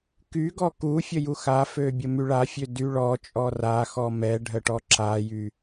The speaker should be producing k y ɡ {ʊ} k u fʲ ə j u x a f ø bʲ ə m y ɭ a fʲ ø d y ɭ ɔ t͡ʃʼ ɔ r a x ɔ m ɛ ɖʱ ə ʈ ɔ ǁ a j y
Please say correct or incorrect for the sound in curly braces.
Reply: incorrect